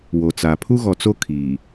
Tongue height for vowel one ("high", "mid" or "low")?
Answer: mid